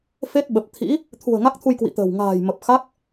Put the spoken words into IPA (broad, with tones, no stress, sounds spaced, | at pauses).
f e˦˥ t̚ ɓ ə˨˩ p̚ t̪ʰ ḭ˧˥ | t̪ʰ ṳ˨˩ ə̯ ŋ a˦˥ k̚ t̪ʰ u˧ j k w ḭ˧˨ t̪ ə̤ː˨˩ w ŋ a̤ː˨˩ j m ə˨˩ p̚ x a˦˥ k̚